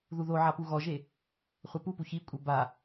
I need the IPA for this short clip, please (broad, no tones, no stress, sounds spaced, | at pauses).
ð u ð o ʕ a p u ɣ ɔ ʒ e | χʷ ɐ p u p u ç i kʷʼ ɘ b a